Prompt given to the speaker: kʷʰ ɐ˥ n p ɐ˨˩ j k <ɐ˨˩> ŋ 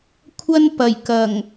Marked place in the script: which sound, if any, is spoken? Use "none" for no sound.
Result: ɐ˨˩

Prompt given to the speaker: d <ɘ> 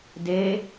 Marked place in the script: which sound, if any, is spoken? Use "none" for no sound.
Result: e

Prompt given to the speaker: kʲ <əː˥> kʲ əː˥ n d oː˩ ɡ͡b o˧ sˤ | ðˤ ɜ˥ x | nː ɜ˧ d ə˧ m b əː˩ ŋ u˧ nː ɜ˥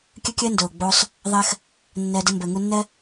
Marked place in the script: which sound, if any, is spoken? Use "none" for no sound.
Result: ə˥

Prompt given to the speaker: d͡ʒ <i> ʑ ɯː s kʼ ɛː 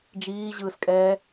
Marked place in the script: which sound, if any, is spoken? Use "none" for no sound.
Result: iː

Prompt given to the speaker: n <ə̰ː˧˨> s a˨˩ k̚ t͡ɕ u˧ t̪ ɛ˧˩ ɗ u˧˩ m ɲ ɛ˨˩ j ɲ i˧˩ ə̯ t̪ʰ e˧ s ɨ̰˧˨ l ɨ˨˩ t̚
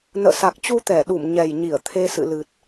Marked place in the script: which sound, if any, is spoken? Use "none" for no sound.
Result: ə̰ː˧˨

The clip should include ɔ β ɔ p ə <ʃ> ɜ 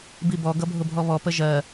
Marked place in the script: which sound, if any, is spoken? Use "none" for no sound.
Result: ʒ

